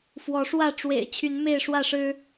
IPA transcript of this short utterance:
f w ɔ˨˦ ʂ w ä˥˨ ʈ͡ʂ w ḛ˨˩ ɪ̯ t͡ɕʰ y˨˦ n m e˥˨ ɪ̯ ʂ w ä˥˨ ʂ ɻ̩˦

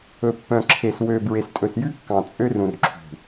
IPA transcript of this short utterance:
ɵ˨ pː œ̃˨ ǁʰ e˨ s w ø˨ b ɹ e˨ s tʼ ɵ˨ s j ʉ˦ kː ɑ̃˨ t͡sʼ ø˦ r ũ˨ r ǁʰ ṳ˨

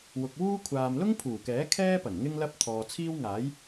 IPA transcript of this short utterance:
w ʊ˨ k̚ w uː˥ kʷʰ aː˨ m l ʊ˥ ŋ pʰ uː˨˩ k ɛː˨˥ kʰ ɛː˥ p ɐ˨˩ n ŋ ɪ˧ ŋ l ɐ˧ p̚ t̪ʰ ɔː˨ t͡sʰ iː˥ w ŋ aː˨˥ j

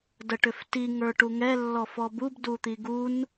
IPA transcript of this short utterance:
d ə ʈ ʏ f t i ŋ ə˞ ʈ u ŋ ɛ lː ɔ f ɔ b u b d u t̪ i ɡ u n

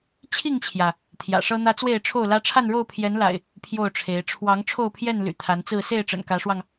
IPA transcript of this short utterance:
t͡ɕʰ i˥˨ ŋ t͡ɕʰ j ä˩ | t̪ʰ j ä̰˨˩ ʂ ɤ˦ n̪ ä˦ t͡s w e˥˨ ɪ̯ ʈ͡ʂʰ o˥˨ ʊ̯ l ä˦ ʈ͡ʂʰ a˥˨ n ɻ o˥˨ ʊ̯ pʰ j ɛ˨˦ n l a̰˨˩ ɪ̯ | pʰ j o˥˨ ʊ̯ ʈ͡ʂʰ e˨˦ ɪ̯ ʈ͡ʂʰ w ɑ˨˦ ŋ ʈ͡ʂʰ o˥˨ ʊ̯ pʰ j ɛ˥˨ n l y̰˨˩ t̪ʰ a˨˦ n t͡s ɹ̩˥˨ s e˥˨ ɪ̯ ʈ͡ʂ ə̰˨˩ n k ä˨˦ ʂ w ɑ˧ ŋ

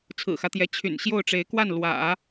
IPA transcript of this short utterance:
t͡sʰ ɹ̩˨˩ x ä˦ t̪ j ɛ˧˥ t͡ɕʰ y̰˨˩ n ɕ j o˥˩ ʊ̯ ʈ͡ʂ e˧˥ ɪ̯ k w a˥˩ n l w ä̰˨˩˦

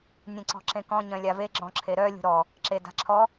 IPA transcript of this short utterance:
nʲ ẽ ǀ ɔ̤ ǁ ẽ k ɔ̃ ɲ œ̃ lʲ a v e ɡ͡ǁ ɔ̃ ǁʰ e ɾ œ lʲ ṳ ɾ ɔ | ǁ e d a̤ ǁʰ ɔ

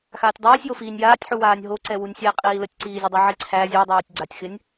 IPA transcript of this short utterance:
x aː tʲ dˤ iː sʲ j o f iː nʲ j aː tʲ ħ u w aː nʲ ɦ o ǀ ɛ w u nʲ sʲ ɛ qʼ iː l ə tʲ ǀ iː zʲ ə dˤ u ʕ i ǀʰ æ zʲ u dˤ oː tʲ ɡ͡ǀ a tʲ x ɪ nʲ

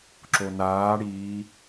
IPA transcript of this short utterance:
ǁ o n aː ɽ iː

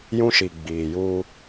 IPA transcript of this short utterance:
j ũ˦ ʃ i˨ ɡ͡b iː˨ j uː˦

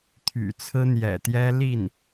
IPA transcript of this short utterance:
t̪ʰ y̰˨˩ t͡sʰ ɹ̩˥ n̪ j ɛ̰˨˩ t̪ j ɛ˥ l i˥˩ n

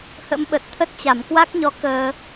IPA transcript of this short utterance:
h ə̰˧˥ m ɓ ə˨˩ t̚ t̪ʰ ə˦˥ t̚ t͡ɕ a˧˩ m k w a˦˥ k̚ ɲ ɔ˨˦ k əː˧

